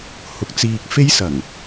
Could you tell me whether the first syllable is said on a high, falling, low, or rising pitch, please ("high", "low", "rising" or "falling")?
rising